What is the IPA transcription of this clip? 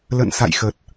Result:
l ə̰˧˨ n s a̰˧˨ j x ə˨˩ t̚

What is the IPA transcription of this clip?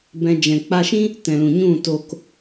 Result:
b ɛ̃˧ d͡ʒ ɛ̃˨ k͡p a˧ ʃ ĩ˦ | t ɛ̃˨ l ũ˨ ɲ ũ˦˨ t o˧ k

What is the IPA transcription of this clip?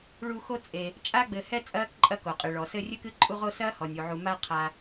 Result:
ɭ u˦ x o˦ t͡sʼ e˩ | t͡ʃʼ a˦ ɡ͡b ɘ˨ h ɛ˦ t͡sʼ ɐː˥ k ǃʼ ɐ˦ k o˩ qʼ ɨ˩ ɭ ɔ˩ s ɘ˦ rʲ ɨ˥ k ɨ˥ ǃʼ u˦ ʁ o˦ s ɐː˥ h ɔ˩ nʲ u˩ ʕ u˨ m a˦ qʰ a˨

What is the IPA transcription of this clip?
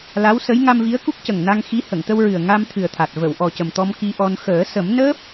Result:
l a˧˥ w s ə˧˥ j ŋ a˧ m v i˧˥ ə̯ k u˦˥ k̚ c ə˨˩ ŋ n a˧ ŋ x i˧˥ h ə˨˩˨ ŋ t̪ ə˧ w ɹ ɨ˨˩ ə̯ ŋ a˧ m t̪ʰ ɨ˨˩ ə̯ t̪ʰ a˨˩ t̚ v ə˨˩˨ w ʔ ɔ˨˩ c ə˨˩ m t̪ ɔ˧ m k i˧ ʔ ɔ˧ n x əː˨˩˦ s ə˨˩˦ m n əː˦˥ p̚

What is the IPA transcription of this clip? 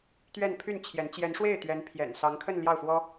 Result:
t̪ ɥ ɛ˥˧ n pʰ y˥˩ n t͡ɕʰ j ɛ˧˥ n t͡ɕ j ɛ˧˥ n ʂ w e˥˩ ɪ̯ t̪ ɥ ɛ˧˥ n pʰ j ɛ̰˨˩ n s ɑ˧˥ ŋ kʰ ə˥˧ n l j ɑ˥˩ ʊ̯ f w ɔ˥

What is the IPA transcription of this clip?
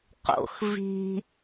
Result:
q o̰ x v i̤

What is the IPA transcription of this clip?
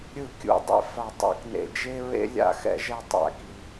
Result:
ɾʲ ɯ˧˩ kʲ ṵ˧˩ dˤ ḛ˧ f a˧˩ tˤ a̰˧˩ k n ḛ˧˩ d͡ʒ e˥ ɹ ḛ˥ lʲ a̰˥˧ x ɛ̰˥˧ ʒ ɛ˥˧ tˤ a̰˥˧ k i˧

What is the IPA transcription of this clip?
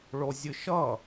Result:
ɭ o zʲ ɨ ʃ ʌ

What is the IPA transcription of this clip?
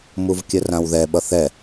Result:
m u v kʲ ə r ã w ð ɛ ɓ ʌ θ ɛ

